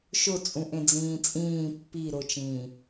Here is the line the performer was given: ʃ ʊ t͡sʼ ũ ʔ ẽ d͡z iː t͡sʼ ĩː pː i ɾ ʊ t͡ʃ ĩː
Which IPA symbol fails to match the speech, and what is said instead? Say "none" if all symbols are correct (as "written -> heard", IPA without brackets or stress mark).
iː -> ĩː